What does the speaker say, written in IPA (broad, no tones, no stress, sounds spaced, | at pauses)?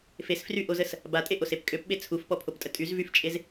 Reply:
f e s f r y ʔ o z ə s | b a tʼ e ʔ o s e p kʼ ø p ɓ e t͡sʰ u f p ɔ pʰ o p tʼ ə tʼ y z v y f t͡ʃʼ e z